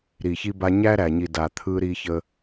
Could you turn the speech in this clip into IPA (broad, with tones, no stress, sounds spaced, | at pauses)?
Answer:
ɾ i˨ ç i˦ b a˦ ɲ æ˦ ɾ æ˨ ɲ i˨ d a˨ t̪ʰ ɯ˦ ɾ i˦ ç ə˦